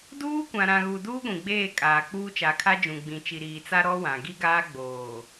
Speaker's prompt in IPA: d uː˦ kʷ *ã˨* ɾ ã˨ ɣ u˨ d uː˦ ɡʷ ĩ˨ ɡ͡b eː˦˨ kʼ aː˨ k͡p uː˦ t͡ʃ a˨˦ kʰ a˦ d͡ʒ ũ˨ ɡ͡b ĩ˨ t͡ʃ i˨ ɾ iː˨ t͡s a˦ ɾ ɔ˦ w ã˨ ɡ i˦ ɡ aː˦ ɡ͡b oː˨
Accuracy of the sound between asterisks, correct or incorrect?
correct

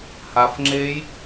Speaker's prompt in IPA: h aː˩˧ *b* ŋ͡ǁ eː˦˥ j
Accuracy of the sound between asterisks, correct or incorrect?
incorrect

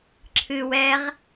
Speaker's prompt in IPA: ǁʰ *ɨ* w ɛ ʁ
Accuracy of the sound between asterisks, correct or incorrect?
correct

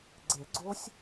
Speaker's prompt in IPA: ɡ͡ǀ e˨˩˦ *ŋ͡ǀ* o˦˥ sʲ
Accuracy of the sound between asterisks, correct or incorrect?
incorrect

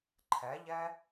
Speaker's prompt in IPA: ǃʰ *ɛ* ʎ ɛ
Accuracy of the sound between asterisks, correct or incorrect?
correct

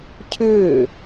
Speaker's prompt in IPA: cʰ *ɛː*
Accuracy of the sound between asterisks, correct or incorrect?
incorrect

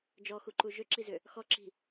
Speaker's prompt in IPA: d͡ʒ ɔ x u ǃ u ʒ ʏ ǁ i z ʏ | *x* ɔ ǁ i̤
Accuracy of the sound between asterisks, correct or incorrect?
correct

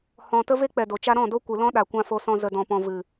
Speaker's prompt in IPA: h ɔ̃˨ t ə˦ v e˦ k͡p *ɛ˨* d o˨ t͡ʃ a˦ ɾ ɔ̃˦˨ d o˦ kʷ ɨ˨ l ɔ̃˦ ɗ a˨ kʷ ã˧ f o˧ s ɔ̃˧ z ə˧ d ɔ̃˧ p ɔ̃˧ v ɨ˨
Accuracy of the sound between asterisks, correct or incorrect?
correct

